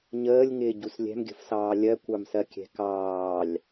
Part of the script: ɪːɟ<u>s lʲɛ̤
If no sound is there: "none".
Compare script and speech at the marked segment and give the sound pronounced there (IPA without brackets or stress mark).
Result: u